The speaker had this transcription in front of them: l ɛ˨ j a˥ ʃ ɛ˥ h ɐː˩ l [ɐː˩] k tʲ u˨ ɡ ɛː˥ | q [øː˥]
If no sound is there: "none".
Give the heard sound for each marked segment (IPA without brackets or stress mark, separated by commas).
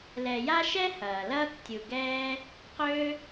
ɐː˥, ø˥